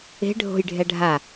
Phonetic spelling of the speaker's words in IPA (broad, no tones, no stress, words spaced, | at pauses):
e̤ ɖʱo̤jɖʱɛ ɖʱa